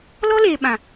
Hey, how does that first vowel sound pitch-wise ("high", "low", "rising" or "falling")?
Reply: high